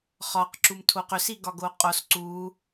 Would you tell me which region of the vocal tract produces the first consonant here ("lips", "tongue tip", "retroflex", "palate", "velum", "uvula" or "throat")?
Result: uvula